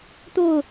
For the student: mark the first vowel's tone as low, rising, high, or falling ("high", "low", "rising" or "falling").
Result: falling